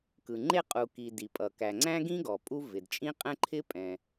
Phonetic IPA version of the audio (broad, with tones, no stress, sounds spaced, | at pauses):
k ɯ˩ ŋ͡ǃ e˥ qʼ u˩ k i˩ d i˩ pʼ ʌ˩ k æ˩ ŋ͡ǀ æ̃˥ ɡ ĩ˥ ɡ ɔ˩ pʼ u˥ v ɪ˩ d t͡ʃʼ ĩ˥ qʼ ɛ̃˥ ǃʰ ɪ˥ pʼ ɛ̃˩